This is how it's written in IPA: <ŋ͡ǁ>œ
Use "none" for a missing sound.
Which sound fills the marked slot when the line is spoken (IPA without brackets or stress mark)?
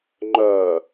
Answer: ŋ͡ǃ